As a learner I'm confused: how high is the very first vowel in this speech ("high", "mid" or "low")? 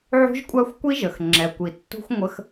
high